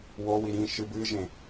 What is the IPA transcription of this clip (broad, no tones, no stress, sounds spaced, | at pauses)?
w o w i ɾ ĩ ʃ ɨ b ɨ ʒ ẽ